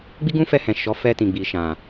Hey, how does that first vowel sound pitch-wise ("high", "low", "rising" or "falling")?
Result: high